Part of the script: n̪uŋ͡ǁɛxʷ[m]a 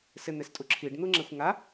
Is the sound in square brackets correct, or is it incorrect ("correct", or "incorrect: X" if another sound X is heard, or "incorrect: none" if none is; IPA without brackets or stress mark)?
incorrect: ŋ